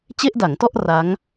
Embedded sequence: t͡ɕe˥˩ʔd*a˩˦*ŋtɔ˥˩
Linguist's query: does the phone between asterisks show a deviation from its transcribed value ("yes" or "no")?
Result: no